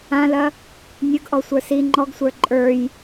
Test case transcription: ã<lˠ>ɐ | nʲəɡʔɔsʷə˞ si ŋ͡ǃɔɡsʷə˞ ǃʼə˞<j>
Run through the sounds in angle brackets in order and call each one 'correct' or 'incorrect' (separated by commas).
incorrect, correct